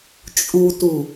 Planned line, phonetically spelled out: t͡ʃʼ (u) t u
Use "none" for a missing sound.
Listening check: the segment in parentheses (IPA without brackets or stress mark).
u